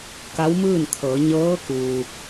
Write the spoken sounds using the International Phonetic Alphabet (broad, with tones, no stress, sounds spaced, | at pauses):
k a˧˥ w m ɯː˥˨ n kʰ ɤː˩˧ ɲ ɤː˧˥ k u˩